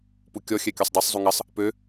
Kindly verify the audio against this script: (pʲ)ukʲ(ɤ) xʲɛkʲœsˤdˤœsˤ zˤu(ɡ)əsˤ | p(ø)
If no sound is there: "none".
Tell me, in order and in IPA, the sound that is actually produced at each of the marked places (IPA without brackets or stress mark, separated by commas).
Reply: p, ɔ, ŋ, ø